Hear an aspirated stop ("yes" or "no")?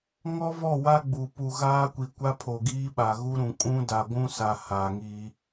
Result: yes